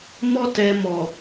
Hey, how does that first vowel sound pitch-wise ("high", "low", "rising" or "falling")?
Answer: high